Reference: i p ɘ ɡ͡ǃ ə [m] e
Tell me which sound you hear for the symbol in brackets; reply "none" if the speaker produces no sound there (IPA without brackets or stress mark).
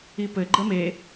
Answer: m